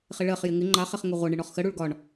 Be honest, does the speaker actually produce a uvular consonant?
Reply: yes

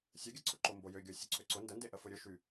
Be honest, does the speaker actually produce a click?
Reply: yes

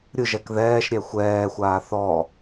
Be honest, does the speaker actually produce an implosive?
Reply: no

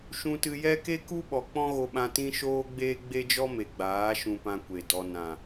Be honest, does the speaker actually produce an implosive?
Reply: yes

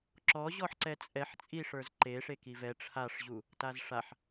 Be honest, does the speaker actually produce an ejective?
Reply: yes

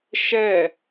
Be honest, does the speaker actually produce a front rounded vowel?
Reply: no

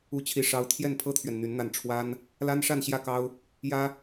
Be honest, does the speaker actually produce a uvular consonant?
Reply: no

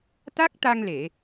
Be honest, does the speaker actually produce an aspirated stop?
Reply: no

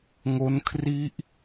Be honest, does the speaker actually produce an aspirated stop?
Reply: yes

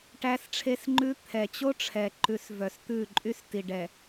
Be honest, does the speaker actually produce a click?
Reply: yes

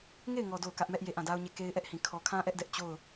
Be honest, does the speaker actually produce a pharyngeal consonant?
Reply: no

